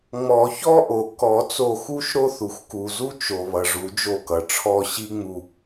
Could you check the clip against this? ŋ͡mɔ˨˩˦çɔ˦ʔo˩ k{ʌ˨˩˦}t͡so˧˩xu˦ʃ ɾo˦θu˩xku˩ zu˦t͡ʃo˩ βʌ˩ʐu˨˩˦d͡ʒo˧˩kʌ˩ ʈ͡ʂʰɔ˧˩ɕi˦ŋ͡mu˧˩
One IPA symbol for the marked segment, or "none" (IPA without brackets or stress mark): ɔ˨˩˦